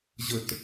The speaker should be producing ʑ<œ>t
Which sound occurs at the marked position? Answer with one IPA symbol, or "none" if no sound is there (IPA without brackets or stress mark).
ə